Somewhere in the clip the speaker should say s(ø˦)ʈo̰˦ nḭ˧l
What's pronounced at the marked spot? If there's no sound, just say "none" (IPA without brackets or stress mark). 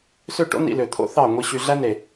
ø˦˨